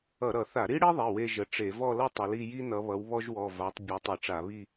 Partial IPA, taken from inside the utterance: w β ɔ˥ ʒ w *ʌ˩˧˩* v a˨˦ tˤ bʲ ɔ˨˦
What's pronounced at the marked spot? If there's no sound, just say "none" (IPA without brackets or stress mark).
ɔ˩˧˩